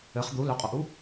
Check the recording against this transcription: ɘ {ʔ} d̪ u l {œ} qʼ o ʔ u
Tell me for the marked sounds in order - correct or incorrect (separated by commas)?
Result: incorrect, correct